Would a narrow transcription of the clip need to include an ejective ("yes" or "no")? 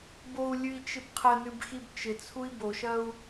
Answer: no